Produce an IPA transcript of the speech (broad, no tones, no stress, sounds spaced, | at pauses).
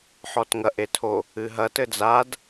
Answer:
ħ ɔ t ŋ ɐ ʔ e tʰ o | ɨ ɦ ɐ t ɘ d͡z a d